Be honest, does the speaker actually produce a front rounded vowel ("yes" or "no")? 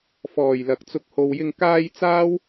no